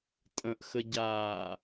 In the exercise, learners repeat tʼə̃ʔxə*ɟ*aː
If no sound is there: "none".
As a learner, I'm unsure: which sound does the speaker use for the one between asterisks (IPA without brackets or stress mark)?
ɟ